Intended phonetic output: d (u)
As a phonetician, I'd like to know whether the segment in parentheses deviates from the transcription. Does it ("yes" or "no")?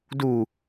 no